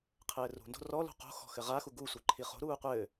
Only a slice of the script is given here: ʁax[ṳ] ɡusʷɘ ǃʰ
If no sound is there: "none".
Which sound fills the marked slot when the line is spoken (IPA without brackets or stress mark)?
u